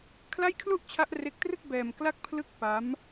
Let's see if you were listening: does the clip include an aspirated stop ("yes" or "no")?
yes